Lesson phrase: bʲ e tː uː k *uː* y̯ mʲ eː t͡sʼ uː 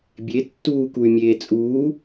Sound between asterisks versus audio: incorrect: u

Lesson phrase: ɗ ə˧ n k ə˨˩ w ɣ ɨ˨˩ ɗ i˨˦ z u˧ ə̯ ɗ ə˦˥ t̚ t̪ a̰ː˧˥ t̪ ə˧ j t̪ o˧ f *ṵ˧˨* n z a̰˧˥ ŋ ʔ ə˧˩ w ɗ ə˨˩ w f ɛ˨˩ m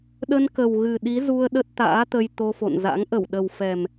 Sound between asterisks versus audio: incorrect: o̰˧˨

